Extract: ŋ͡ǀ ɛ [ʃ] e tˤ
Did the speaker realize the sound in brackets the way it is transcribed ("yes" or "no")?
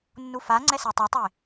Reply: no